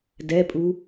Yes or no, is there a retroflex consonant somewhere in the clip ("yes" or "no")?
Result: no